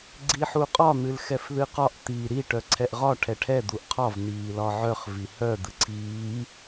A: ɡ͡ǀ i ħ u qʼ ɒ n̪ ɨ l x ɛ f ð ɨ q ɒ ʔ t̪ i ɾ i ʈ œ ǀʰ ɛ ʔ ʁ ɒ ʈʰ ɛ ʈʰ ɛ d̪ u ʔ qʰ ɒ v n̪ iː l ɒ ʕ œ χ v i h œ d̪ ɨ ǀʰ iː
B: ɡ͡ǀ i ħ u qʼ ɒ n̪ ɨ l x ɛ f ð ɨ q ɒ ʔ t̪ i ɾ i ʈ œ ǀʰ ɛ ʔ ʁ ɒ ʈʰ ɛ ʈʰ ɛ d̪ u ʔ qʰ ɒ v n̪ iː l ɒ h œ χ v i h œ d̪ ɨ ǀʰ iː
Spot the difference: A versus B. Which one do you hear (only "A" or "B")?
A